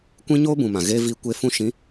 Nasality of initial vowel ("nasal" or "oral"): nasal